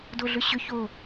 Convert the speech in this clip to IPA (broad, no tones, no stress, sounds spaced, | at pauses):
d o ɮ ʏ ɕ ʏ ç o